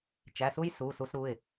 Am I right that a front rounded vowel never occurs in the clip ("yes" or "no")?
yes